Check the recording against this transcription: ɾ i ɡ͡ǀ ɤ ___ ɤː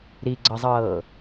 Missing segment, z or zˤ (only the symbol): zˤ